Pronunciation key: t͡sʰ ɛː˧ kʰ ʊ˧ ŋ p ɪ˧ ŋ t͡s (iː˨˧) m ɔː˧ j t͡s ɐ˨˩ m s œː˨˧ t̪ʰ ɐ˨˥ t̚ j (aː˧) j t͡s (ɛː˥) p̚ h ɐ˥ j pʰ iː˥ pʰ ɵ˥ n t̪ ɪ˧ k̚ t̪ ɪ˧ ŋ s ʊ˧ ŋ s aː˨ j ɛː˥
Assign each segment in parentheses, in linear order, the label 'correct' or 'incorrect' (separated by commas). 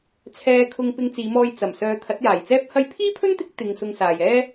correct, incorrect, correct